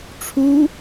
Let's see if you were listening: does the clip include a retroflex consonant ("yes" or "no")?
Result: yes